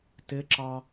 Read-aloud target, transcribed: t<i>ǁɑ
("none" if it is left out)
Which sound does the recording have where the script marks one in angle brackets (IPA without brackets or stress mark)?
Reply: ɪ